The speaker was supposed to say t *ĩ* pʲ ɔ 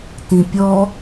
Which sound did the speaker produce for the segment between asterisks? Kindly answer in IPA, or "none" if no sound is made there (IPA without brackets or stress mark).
ĩ